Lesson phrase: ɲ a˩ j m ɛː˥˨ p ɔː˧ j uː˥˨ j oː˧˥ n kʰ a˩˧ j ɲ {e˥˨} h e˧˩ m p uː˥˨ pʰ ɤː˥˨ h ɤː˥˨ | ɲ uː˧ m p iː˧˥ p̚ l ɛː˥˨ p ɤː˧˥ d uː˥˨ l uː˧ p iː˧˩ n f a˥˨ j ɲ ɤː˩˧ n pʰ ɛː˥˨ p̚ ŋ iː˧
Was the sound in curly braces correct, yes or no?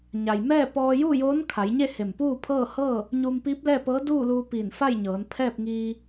yes